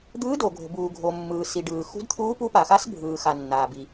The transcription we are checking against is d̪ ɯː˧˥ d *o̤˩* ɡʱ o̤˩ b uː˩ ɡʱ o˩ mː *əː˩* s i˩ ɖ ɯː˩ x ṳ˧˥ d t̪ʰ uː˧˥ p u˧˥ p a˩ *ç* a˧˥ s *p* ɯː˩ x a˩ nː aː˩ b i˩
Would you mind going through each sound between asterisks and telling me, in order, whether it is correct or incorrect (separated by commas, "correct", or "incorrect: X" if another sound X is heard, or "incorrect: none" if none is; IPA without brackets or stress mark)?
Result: incorrect: o˩, incorrect: ɯː˩, incorrect: x, incorrect: bʱ